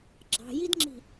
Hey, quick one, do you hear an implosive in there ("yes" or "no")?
no